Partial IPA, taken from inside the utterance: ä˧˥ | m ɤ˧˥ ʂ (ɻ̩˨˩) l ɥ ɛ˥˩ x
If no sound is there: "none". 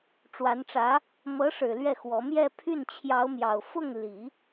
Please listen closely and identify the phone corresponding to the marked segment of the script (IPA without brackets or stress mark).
ɻ̩˨˩